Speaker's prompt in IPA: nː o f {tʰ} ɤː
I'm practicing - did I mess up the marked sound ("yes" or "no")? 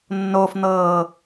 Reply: yes